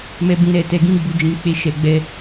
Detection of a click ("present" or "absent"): absent